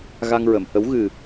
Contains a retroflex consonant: no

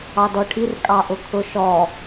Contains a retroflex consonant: yes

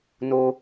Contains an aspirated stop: no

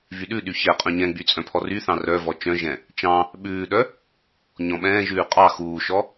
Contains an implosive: yes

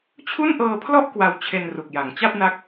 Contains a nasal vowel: no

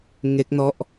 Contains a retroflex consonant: no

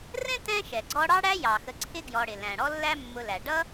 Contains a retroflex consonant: yes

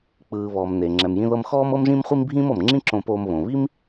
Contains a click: yes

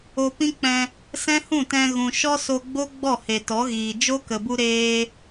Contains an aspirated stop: no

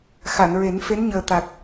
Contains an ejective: no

